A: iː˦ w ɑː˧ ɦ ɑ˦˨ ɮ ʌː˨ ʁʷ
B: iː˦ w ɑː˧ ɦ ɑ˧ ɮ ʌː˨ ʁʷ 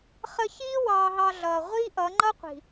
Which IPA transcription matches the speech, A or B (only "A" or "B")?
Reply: B